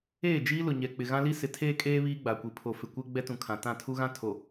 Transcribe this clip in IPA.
eː˦˨ d͡ʒ iː˦ l ʊ˨ ɲ ɛ˨ k͡p ɪ˨ ɣ ã˦ l i˦ s ɪ˨˦ tʰ eː˦ kʼ eː˦ β iː˦ ɡ͡b a˨ kʷ i˨ pʰ o˨ f ɪ˨ kʷ e˦ ɡ͡b ɛ˦ t ũ˨ kʰ ã˨ t ã˦˨ tʰ u˦ ɣ ã˦ tʰ o˨

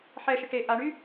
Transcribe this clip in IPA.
ħ ɛ ʃ ɪ ʈ e ʔ a ɳ y

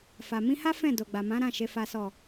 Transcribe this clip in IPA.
f a˨ m ĩ˧ h a˦ f ɛ̃˦˨ d o˨ ɡ͡b a˨ m ã˨˦ ɾ ã˦˨ ʃ e˨ f a˨ s ɔ˨

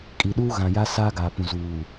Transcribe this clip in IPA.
kʼ i˨ ɗ uː˦ ɣ ã˨ j a˦ s aː˦ ɡ aː˨ p ũ˨ z uː˨

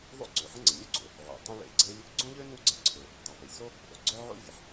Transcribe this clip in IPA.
ðˤ o̰˥ ǀ ø˩ ħ ə̃˥ ŋ͡ǀ ə˩ mʲ u˥ ɡ͡ǀ o̰˩ | ʕ o̰˩ tˤ œ̃˥ ɭ ḛ˩ ɡ͡ǀ e˥ lʲ | ɡ͡ǀ õ˥ ʎ ø˥ n u˥ ɡ͡ǀ ə˥ ǀʰ ø˩ | dˤ u˩ p e˩ lʲ s o˥ | ʔ o˩ ɡ͡ǀ œ˥ ʕ o̰˥ vʲ ə˩ ħ

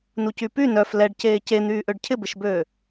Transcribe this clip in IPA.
n u c y p y n œ f l ɛ ɖ c eː c e n̪ yː ʔ ø ɖ cʰ ɪ b ɪ ʃ b øː

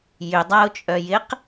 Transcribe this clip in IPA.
j ʏ dˤ a ʊ̯ t͡ʃʼ œ j ɪ q

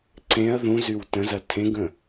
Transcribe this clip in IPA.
ǀ ẽ ɐ̯ ð ũ z y w t ə̃ z ɐ tʰ ẽ ɡ ə̃

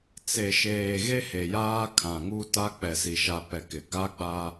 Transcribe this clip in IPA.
t͡s e˨ ʃ eː˨ ɣ e˦ h e˨ j aː˦ kʰ ã˨ ŋ u˦ t a˦ k͡p ɛ˨ s i˨ ʃ a˨ p ɛ˨ k ɪ˨ ɡ a˦ ɡ͡b a˦

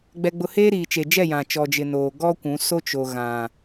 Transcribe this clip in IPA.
ɡ͡b ɛ˦ ɡ͡b ʊ˦ h eː˦ ɾ iː˨ t͡ʃ e˨ d͡ʒ ɛ˦˨ j ã˨ t͡ʃ ɔ˨ d͡ʒ ɪ˨ n oː˨ ɡ ɔ˦ kʷ ũ˨˦ s o˦ t͡ʃ o˨ ɣ ã˨

